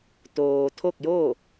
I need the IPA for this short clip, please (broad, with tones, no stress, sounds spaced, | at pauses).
t̪ oː˩ t̪ʰ o˥˨ k̚ j o˥˨